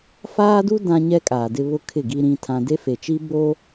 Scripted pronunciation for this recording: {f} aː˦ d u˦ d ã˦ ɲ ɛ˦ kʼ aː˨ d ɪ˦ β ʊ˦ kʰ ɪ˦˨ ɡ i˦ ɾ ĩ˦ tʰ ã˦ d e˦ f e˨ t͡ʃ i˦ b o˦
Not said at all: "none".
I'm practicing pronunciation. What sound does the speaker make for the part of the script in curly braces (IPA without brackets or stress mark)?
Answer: f